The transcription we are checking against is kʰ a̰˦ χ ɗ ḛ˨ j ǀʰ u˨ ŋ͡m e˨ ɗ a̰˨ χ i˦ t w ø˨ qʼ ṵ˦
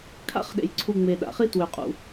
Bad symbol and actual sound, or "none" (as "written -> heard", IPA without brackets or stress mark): none